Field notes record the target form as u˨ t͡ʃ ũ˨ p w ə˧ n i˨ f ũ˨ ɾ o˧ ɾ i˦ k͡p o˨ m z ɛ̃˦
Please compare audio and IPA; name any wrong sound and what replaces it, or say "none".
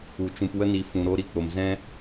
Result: none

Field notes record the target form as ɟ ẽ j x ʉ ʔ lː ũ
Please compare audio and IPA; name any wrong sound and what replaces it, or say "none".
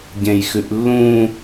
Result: none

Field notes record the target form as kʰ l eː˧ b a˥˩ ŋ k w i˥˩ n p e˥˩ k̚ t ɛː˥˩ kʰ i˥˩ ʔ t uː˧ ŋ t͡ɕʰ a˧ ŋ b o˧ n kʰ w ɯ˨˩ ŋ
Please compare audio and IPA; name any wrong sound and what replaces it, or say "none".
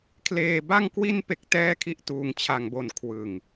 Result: none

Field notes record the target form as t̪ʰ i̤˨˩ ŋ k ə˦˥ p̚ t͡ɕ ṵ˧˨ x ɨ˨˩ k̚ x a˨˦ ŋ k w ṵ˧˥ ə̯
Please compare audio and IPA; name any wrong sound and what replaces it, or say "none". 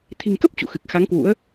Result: none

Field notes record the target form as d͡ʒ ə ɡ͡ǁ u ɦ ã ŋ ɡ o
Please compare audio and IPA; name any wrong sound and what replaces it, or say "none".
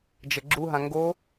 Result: none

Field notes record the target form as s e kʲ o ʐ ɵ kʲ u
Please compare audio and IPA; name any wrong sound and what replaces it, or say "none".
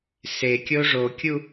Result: ɵ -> o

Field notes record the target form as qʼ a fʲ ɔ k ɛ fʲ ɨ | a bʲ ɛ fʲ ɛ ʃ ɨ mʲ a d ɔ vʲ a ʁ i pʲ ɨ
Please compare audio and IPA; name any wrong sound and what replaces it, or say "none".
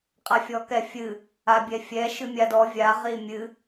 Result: pʲ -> mʲ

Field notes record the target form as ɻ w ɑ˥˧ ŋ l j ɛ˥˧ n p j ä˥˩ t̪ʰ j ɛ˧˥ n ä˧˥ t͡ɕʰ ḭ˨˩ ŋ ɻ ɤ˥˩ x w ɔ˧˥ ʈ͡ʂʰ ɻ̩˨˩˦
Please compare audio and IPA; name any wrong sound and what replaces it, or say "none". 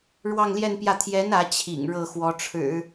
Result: none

